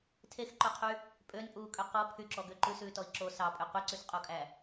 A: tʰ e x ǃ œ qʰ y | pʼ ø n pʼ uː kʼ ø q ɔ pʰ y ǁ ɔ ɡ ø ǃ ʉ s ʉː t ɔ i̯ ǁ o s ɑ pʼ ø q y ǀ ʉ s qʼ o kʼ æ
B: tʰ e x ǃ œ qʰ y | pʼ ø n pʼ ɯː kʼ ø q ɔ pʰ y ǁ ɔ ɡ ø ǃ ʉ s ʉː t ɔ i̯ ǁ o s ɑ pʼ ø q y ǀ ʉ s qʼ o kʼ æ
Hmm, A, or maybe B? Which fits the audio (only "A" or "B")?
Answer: A